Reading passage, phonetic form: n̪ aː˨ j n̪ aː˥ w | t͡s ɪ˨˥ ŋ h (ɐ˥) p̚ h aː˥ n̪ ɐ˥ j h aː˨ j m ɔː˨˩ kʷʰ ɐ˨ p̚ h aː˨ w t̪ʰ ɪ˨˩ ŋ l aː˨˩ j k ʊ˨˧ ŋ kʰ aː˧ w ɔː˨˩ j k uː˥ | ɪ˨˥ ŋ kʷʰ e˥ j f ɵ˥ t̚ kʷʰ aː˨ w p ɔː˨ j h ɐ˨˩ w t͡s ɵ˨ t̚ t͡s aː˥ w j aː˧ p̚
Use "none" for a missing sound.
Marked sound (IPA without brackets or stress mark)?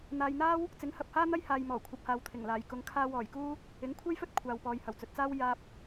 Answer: ɐ˨